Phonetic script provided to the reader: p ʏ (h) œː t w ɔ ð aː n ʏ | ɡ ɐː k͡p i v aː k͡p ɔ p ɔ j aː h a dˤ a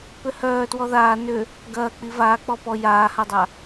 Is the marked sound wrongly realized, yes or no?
no